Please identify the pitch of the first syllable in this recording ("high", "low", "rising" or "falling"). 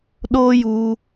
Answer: high